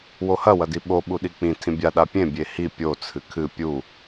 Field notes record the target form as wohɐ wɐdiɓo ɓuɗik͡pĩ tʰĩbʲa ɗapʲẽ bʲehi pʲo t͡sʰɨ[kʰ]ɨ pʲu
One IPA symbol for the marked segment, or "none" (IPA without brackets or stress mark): kʰ